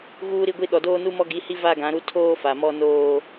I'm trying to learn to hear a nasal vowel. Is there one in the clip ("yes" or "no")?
yes